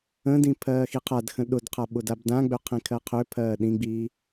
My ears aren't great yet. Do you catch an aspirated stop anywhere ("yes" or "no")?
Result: yes